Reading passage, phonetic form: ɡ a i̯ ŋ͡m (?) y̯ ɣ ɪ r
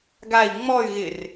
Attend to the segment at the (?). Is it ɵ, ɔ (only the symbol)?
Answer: ɔ